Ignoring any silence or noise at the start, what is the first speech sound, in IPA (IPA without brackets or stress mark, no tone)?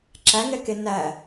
ǁ